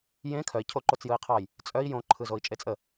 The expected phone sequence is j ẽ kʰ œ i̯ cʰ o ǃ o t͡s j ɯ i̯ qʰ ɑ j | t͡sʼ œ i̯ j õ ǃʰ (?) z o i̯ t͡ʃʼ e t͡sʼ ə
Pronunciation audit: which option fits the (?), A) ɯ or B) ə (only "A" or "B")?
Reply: A